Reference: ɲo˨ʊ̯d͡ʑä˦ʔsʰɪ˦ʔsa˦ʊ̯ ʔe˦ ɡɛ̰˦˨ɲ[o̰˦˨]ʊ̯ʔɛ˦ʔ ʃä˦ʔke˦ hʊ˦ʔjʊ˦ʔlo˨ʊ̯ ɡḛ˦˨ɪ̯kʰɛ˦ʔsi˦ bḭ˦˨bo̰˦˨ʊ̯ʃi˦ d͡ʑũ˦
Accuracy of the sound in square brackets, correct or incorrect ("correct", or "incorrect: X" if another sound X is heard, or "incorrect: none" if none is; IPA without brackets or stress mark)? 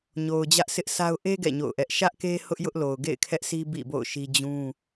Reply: correct